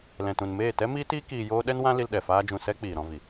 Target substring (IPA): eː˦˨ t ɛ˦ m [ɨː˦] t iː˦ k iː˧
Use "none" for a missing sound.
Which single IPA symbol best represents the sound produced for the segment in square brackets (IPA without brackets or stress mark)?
iː˦